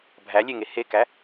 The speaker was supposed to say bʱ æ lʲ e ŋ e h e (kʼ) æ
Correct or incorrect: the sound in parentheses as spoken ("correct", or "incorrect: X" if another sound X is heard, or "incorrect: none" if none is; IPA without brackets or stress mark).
incorrect: k